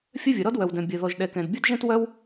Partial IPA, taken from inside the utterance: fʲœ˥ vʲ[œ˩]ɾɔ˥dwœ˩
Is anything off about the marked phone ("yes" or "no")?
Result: no